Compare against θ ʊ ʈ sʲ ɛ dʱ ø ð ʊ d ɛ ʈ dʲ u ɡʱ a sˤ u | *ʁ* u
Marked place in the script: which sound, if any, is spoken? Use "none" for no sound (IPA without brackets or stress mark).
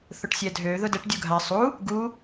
ɡ